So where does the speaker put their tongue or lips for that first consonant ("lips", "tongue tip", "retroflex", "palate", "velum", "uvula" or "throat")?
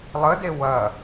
tongue tip